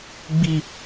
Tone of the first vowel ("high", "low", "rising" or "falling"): falling